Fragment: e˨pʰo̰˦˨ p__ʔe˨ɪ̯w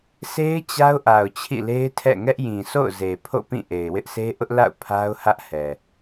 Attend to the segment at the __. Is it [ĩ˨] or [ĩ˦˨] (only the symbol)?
ĩ˦˨